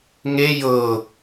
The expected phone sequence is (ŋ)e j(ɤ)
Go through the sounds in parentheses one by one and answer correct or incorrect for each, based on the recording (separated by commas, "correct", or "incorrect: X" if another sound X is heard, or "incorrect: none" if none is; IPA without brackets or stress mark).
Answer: correct, correct